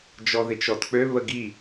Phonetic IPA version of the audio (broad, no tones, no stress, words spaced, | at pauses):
d͡ʒɔðɪt͡ʃɔtk͡pø βəɡi